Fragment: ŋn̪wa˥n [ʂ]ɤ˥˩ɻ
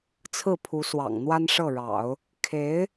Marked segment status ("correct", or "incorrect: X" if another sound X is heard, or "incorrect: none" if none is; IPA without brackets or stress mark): correct